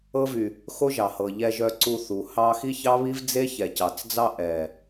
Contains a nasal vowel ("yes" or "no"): no